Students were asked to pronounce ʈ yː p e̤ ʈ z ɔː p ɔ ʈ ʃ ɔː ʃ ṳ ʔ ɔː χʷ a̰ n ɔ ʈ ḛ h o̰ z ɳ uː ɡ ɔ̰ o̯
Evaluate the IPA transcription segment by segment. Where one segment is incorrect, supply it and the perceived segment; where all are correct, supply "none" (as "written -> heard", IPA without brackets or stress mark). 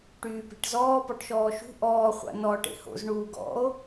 none